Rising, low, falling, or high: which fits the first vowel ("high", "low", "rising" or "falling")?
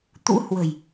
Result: rising